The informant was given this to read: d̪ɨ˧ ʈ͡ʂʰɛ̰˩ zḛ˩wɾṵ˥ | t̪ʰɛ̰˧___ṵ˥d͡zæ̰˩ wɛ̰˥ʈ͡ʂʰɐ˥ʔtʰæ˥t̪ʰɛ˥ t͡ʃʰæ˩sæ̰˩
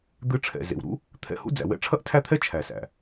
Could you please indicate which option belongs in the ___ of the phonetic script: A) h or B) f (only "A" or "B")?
A